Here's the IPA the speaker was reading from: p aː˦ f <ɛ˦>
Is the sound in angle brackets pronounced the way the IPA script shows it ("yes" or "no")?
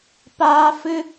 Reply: no